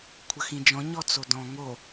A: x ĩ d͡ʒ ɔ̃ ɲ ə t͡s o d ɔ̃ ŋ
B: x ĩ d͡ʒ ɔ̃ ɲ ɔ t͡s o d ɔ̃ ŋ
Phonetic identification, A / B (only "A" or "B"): B